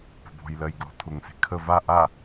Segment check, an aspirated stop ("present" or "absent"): present